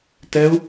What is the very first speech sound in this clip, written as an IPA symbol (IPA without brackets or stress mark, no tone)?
t